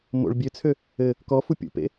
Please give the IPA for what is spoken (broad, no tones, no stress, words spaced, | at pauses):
mo̰ɭ bʲøt͡sʰø | ɘ | kɔfu pʲṵpḛ